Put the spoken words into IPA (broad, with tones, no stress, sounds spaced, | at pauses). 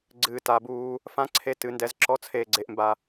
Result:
ɡ͡ǀ ɨː˨ t a˨ b uː˧ | f ã˦ ǀʰ e˧ t ɨ˨ n d ɛ˧ z ǁ ɔ˦ t͡sʰ eː˧ ɡ͡ǀ e˧ ʔ m b a˧